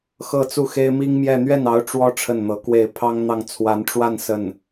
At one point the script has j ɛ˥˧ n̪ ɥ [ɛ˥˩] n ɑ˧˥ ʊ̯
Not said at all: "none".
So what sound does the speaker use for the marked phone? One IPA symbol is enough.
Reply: ɛ˥˩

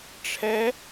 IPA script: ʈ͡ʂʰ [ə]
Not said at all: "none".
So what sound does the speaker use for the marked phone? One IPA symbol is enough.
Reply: ɛ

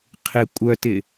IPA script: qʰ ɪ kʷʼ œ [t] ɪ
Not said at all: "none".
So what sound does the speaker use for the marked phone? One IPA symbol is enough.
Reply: t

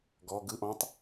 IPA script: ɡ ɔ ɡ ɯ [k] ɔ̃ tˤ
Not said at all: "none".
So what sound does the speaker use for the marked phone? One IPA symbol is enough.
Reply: ʔ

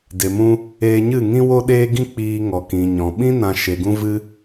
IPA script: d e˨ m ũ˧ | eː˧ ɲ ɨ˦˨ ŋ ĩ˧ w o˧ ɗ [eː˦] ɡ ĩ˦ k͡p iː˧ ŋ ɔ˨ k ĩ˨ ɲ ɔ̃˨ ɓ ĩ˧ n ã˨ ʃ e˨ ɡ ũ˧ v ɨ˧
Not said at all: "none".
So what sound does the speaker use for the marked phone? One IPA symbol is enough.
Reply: eː˧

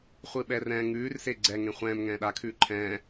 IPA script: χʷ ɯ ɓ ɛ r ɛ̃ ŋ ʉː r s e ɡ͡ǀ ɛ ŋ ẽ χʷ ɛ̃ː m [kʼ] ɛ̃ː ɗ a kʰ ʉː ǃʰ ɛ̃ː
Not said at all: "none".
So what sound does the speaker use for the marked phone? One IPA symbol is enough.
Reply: ŋ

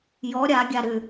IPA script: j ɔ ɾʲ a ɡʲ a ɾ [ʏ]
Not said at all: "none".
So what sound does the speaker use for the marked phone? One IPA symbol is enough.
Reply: ʏ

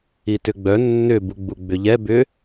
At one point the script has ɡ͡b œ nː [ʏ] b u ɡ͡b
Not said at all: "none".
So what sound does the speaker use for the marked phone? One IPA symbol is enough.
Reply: ʏ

